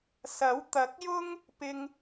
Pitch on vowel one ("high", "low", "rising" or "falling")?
rising